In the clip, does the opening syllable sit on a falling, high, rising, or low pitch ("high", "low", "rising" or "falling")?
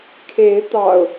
rising